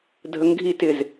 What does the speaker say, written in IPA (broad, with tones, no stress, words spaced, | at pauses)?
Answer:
dʱə˧˥ŋɡʱi˧˥ tɪ˩z